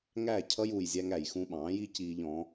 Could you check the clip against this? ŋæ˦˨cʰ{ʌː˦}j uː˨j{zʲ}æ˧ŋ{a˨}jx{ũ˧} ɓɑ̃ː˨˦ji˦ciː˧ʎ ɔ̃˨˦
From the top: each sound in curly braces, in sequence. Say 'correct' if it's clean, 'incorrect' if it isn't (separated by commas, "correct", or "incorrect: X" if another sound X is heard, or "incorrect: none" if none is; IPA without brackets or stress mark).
incorrect: ʌ˦, correct, incorrect: æ˨, correct